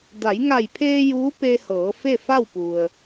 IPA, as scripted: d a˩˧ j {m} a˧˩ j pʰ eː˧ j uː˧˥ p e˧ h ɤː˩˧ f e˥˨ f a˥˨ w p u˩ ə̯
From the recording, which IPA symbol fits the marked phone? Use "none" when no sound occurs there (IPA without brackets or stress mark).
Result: ŋ